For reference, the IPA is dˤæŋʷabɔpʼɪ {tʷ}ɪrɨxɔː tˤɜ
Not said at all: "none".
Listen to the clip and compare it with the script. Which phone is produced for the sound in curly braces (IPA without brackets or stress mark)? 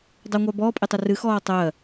tˤ